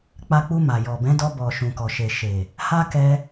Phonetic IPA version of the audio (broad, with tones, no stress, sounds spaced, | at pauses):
k͡p a˧ k͡p u˧ m a˨ j ɔ˨ b ɛ̃˨˦ d ɔ˧ b ɔ˨ ʃ ũ˨ k ɔ˨ ʃ e˨ ʃ e˨ | h a˦ k ɛ˧